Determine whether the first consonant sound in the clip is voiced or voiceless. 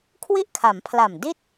voiceless